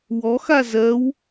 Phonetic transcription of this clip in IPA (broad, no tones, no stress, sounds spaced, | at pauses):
w ɔ x a z ɜ w